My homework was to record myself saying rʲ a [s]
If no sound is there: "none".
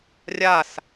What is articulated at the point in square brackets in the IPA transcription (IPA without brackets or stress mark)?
s